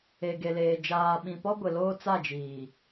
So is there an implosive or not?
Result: yes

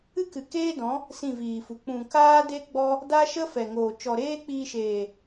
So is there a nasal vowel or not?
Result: yes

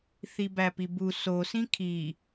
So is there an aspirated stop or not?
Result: yes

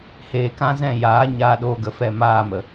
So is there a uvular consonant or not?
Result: no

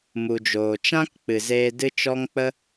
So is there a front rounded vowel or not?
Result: no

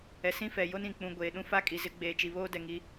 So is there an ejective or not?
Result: yes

